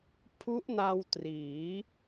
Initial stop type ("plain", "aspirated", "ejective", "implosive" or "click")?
aspirated